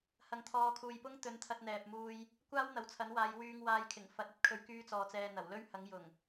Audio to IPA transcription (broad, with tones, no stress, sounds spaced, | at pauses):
h ɐ˨ ŋ t̪ʰ ɔː˨˧ kʰ uː˨ j p ʊ˥ ŋ t̪ ɵ˨˥ n t̪ʰ ɐ˧ t̚ n̪ ɛː˨ p̚ m uː˧ j | kʷ aː˥ w n̪ ɐ˨ w t͡sʰ ɐ˨˥ n w aː˨˧ j w yː˧ ŋ w aː˧ j kʰ ɪ˨˩ ŋ f ɐ˧ t̚ ɐ˥ t̚ kʰ ɵ˧ ɥ k yː˥ t͡s ɔː˧ t͡s ɛː˧ n̪ ɐ˨˩ w l ɵ˥ ɥ h ɐ˨˥ ŋ j ʊ˨˩ ŋ